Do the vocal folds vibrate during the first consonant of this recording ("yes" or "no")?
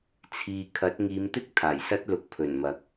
no